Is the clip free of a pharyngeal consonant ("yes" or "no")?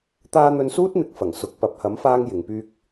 yes